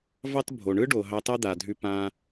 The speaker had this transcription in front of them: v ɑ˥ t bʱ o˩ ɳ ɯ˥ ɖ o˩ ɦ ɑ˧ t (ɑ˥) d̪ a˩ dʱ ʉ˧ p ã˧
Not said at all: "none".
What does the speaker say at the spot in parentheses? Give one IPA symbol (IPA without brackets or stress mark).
ɑ˥